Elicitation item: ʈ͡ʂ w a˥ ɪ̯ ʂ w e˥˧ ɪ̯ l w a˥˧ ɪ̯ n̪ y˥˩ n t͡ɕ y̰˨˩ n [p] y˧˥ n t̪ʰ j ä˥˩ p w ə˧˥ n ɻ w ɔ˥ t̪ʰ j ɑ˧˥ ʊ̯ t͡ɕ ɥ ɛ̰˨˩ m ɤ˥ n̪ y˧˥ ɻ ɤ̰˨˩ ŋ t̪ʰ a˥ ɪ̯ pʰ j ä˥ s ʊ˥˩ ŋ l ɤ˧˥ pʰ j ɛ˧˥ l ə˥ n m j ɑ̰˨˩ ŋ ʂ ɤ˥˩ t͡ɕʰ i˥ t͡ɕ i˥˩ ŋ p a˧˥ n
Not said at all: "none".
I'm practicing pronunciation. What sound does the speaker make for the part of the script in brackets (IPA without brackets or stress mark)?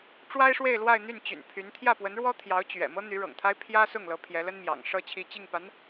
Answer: pʰ